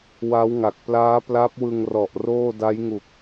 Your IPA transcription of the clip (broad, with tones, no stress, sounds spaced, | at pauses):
w a˦˥ w ŋ a˨˩ k̚ p l aː˦˥ p l a˦˥ p̚ w ɯ˧ ŋ r ɔ˨˩ ʔ r oː˥˩ d a˦˥ j ŋ u˨˩ k̚